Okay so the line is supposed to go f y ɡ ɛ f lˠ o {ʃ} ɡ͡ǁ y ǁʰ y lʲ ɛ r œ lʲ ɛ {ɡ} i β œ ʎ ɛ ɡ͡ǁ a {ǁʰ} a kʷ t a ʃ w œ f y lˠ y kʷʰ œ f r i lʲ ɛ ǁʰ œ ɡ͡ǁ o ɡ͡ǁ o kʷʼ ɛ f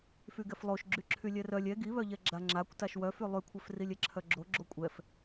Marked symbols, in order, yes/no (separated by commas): yes, yes, no